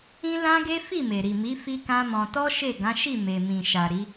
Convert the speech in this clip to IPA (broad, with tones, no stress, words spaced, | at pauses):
ĩ˦lã˦ɡe˦ fi˦˨me˨ɾi˨mi˨˦ fi˦kã˦mɔ̃˧ tɔ˦ʃe˦˨ɡã˨˦ʃi˦˨ me˨mĩ˨ʃa˨ ɾi˨˦